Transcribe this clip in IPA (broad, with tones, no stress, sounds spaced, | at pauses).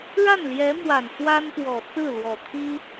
ɻ a˥˩ n l j ɛ˧˥ m w a˨˩ n f w a˥ n p w ɔ˨˩ t͡s ɹ̩˥˩ l w ɔ˨˩ t̪ʰ i˥